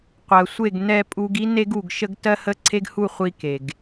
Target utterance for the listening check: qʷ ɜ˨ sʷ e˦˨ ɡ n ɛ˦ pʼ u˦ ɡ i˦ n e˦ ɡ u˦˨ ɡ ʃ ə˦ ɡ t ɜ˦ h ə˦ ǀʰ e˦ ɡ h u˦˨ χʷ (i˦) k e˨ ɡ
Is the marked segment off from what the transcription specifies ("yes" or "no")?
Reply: no